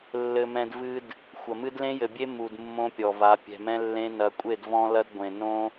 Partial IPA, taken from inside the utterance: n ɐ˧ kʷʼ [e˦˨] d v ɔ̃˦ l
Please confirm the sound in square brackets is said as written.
yes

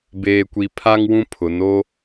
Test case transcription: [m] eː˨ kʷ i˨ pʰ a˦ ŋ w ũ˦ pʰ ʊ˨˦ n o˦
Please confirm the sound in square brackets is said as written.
no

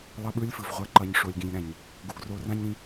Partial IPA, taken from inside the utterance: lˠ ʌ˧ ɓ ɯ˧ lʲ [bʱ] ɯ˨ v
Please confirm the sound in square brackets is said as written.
no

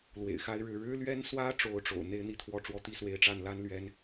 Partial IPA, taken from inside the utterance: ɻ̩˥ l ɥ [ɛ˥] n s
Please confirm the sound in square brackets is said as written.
yes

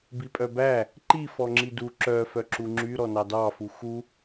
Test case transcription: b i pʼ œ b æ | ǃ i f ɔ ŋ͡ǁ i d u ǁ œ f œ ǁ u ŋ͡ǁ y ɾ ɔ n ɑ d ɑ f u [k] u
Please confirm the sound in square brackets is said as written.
no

